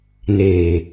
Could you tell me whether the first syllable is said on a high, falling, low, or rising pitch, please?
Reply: low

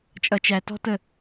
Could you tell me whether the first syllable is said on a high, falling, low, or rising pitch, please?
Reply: low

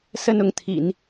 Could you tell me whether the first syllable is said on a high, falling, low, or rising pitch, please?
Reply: high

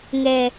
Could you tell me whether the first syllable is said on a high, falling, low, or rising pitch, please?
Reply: low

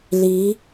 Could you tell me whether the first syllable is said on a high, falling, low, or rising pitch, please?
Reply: rising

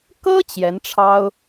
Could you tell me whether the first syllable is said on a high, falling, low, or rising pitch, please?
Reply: high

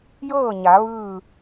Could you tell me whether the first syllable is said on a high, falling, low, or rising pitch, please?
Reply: falling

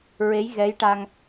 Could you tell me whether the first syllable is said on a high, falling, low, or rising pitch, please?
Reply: rising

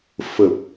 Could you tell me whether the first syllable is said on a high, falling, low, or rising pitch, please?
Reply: low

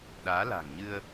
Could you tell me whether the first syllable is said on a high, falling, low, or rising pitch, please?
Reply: rising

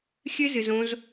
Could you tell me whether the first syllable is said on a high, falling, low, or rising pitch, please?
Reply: high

